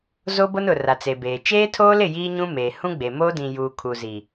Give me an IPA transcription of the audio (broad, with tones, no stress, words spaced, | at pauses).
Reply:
zo˦bo˦nʊ˨ ra˨t͡se˨beː˨ t͡ʃeː˦tʰoː˦lɪ˦˨ jiː˦ɲũ˦meː˨ hũ˦ɡ͡be˨ moː˦dĩ˨juː˨ kʰu˨zi˨